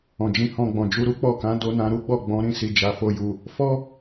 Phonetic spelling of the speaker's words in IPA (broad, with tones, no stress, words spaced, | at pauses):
ɔ̃˨d͡ʒĩ˧hɔ̃˧ɡ͡bɔ̃˨ d͡ʒu˨˦ɾu˦k͡pɔ˦˨kã˨˦ do˧nã˧ɾu˦ɡ͡bɔ˦˨ ɡ͡bɔ̃˨˦ɾĩ˧si˨ d͡ʒa˨fo˧ju˨ | fɔ˦